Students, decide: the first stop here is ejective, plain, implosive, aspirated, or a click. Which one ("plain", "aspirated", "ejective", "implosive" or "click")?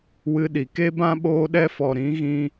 implosive